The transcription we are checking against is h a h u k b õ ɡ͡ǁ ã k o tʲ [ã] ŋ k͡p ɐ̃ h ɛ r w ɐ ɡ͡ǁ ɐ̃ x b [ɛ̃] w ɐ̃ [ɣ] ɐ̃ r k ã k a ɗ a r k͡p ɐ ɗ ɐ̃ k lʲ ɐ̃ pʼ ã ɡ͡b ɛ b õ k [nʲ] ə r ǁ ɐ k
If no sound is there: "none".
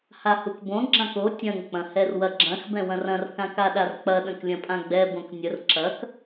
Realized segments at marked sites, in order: ɐ̃, ɛ̃, r, nʲ

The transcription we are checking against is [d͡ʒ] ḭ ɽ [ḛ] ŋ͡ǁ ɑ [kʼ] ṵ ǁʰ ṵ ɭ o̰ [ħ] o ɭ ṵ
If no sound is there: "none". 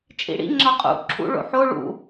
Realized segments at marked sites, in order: t͡ʃʼ, ḭ, qʼ, ħ

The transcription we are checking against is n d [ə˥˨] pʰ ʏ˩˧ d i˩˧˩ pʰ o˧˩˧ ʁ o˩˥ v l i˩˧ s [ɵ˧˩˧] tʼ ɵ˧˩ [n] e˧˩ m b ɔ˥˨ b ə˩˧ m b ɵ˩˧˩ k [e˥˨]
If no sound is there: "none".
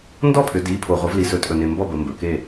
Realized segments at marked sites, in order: ɔ˥˨, ɵ˧˩˧, n, e˥˨

